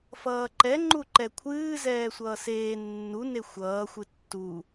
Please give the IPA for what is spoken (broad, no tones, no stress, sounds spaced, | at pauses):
f ʌː ǃ ɛ ŋ͡ǃ u ǃ ɛ kʷʰ ɨː z ɛː sʷ ʌː s eː nː u n e xʷ ʌː xʷ ɨ tː u